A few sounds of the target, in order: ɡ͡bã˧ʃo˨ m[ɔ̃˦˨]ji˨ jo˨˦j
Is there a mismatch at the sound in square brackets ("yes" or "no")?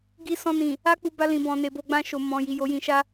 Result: yes